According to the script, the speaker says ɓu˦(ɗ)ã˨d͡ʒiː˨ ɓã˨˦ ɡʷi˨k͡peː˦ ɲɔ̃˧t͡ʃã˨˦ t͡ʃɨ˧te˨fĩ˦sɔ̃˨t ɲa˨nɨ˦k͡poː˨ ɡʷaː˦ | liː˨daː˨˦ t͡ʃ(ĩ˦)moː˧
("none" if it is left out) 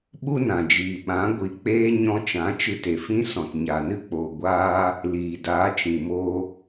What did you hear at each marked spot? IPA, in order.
n, ĩ˨

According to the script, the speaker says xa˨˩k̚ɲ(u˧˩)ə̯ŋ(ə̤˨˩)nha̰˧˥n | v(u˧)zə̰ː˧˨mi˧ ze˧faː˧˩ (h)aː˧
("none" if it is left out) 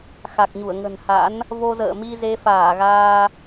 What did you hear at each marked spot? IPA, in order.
u˧˩, ə̤˨˩, o˧, ɣ

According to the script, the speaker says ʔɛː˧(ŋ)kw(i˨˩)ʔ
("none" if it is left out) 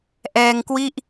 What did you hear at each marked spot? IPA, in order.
ŋ, i˥˩

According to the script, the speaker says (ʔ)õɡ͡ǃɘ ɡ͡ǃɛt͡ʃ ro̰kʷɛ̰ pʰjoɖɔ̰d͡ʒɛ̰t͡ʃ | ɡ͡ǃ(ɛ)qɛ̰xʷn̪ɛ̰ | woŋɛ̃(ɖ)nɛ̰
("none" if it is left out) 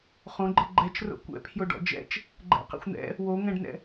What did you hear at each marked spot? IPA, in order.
χ, ɛ̰, ɖ

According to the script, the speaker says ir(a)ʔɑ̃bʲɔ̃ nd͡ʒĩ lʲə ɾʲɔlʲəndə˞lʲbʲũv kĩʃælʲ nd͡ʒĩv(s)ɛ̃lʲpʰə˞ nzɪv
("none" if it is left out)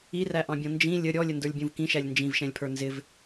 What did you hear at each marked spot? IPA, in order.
æ, ʃ

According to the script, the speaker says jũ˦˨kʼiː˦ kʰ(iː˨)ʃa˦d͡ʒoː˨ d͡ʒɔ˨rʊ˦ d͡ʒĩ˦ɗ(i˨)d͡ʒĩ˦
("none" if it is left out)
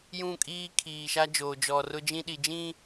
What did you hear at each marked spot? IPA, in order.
iː˨, i˨

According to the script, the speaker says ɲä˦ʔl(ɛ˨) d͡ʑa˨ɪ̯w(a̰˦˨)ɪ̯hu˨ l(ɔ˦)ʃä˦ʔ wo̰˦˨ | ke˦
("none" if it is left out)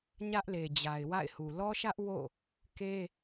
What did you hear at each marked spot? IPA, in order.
e˨, a̰˦˨, ɔ˦

